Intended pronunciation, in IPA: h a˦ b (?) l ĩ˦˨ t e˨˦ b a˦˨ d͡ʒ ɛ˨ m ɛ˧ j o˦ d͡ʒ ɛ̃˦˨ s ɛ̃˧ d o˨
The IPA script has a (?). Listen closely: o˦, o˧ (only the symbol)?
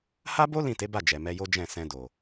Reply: o˦